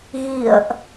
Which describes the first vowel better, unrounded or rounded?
unrounded